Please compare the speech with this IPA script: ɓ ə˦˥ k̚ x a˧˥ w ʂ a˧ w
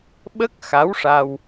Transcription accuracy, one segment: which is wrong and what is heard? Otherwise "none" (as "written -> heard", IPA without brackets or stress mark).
none